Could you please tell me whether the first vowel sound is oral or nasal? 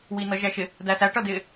oral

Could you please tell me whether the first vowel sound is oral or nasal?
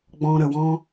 nasal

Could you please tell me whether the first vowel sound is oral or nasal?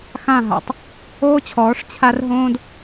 nasal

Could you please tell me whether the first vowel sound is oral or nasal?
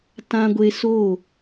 nasal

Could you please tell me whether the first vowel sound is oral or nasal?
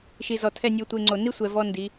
oral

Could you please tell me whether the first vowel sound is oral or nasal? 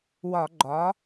oral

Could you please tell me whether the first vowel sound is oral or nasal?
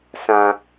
nasal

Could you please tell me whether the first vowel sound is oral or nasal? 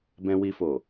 nasal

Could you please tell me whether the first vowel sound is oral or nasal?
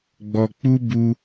oral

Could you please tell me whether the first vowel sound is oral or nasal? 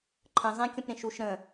nasal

